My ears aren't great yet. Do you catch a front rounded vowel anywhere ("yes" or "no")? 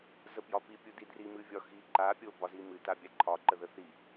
no